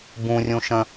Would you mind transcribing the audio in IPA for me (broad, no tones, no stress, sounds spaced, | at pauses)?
b ũ rʲ ũ ʃ ə̃